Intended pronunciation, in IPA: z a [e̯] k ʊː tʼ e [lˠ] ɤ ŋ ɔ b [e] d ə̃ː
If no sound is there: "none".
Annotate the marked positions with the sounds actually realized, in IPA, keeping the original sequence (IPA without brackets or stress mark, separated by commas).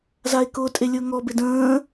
e̯, lʲ, e